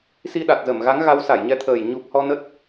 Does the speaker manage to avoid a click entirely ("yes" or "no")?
yes